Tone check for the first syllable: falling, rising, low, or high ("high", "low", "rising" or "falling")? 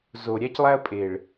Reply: low